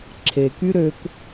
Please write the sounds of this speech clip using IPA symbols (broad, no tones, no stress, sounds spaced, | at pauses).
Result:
ǁʰ e k y ɾ ø k